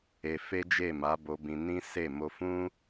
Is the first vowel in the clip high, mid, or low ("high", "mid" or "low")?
mid